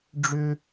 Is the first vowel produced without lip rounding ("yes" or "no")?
no